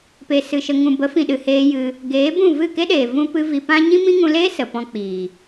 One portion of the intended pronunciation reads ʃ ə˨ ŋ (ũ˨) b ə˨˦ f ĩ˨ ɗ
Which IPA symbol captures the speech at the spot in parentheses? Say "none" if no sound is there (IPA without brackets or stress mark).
ũ˨